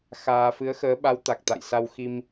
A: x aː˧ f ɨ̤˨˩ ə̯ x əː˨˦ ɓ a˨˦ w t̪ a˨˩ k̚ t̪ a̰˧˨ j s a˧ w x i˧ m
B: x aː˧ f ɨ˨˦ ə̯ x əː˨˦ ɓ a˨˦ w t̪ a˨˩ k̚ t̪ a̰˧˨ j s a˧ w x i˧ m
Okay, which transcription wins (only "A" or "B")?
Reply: B